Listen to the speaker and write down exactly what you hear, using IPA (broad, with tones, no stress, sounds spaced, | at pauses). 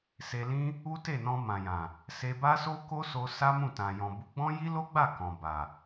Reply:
s e˧ l ĩ˦ | u˦ t e˦˨ n ɔ̃˧ m ã˨ j ã˨ | s e˧ b a˦ s o˦ k o˦ s o˧ s a˦ m ũ˦˨ t ã˨ j ɔ̃˨ b u˨˦ ɡ͡b ɔ̃˦ j i˦ l o˦ ɡ͡b a˦˨ k ɔ̃˨ b a˨